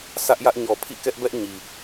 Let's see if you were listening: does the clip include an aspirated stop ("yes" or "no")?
yes